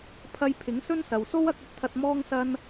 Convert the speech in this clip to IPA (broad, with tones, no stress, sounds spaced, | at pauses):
pʰ ɐ˧ j pʰ ɪ˨˥ ŋ s ɵ˥ n s ɐ˨ w s o˥ w ɐ˨˥ k̚ ɵ˥ t̚ t̪ʰ ɐ˧ t̚ m ɔː˥ ŋ s ɐ˥ n